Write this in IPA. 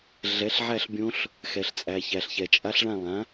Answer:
ɮɛ˨˥ɬʕæ˥˧ɬbʲõ˦˥ɬ | xɛ˨ɬt͡sʼæ˨ çæ˨ɬçɛ˨t͡ʃʼa˦˥ɬɭã˥˧ lˠã˨˥

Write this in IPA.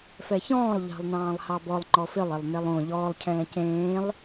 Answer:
fɛçɔ̃ːlˠ ʎɑ̤lˠnɑ̃ːlˠhɑbɔlˠ ŋ͡ǃɔfɪlˠ ɪlˠnelˠõ ʎɔːlˠ cʰɛ̃ːcẽːlˠ

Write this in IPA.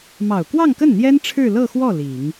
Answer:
mɑ˨˩ʊ̯kwɑ˥˧ŋkə˥˩nn̪jɛ˥n ʈ͡ʂʰɻ̩˥˧lɤ˥˧xwɔ˥˩ li˨˩˦ŋ

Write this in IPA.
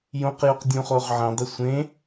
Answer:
jõqjuq dʲũχoʁʕə̃dˤɪ sʷẽ

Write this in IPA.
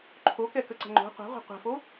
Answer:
ǃʰokɛkəǀə̤ ŋ͡ǃo̤ qʷa̤ʁʷa̤ qʷɛ̤fo

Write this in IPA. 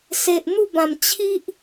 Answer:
se˨ʔ n̪u˥˧bã˨˩m t͡ɕʰi˦ʔ

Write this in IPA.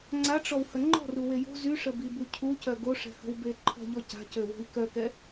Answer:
ŋ͡ǀaʈ͡ʂɔwhə ŋ͡ǃɔ̤ruwe jo̤ zyʂəbibu cʰucœ ɡoʂɛ̤hə̤wbe ǃʰɔ̤ʎɔ ca̤cøwo̤i̯ kœkɛ

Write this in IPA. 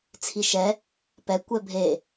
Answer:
t͡sʰiʃɛ | pɛ kʷɛbʱe

